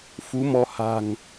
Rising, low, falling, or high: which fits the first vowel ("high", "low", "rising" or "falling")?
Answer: rising